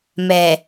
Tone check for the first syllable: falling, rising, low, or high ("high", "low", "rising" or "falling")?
low